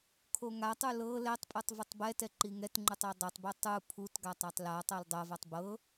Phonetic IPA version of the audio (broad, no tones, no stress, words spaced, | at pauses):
kʰoŋatˤu lɤ lɛtˤpʼutˤ vɯtˤbɛtɛ ǃiŋɛtŋ͡ǃutˤ odˤɛtˤbu tˤu pʰutɡa tˤatˤlatˤɤl dˤɤvatˤ bɤ